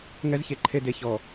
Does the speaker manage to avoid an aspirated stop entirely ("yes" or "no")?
no